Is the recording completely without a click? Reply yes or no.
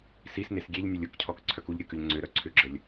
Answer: no